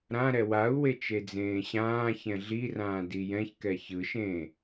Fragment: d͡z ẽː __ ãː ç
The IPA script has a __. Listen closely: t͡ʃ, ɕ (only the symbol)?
ɕ